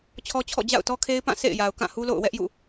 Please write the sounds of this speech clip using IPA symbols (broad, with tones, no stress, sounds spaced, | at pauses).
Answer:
t͡ɕʰ ɔ˦ t͡ɕʰ ɔ̰˦˨ d͡ʑ a̰˦˨ ʊ̯ t ɔ˦ kʰ e˦ ɪ̯ p ã˦˨ s ḛ˦˨ ɪ̯ j a˨ ʊ̯ k ã˦˨ h u˦ l o̰˦˨ ʊ̯ w ɛ˦ ʔ j ṵ˦˨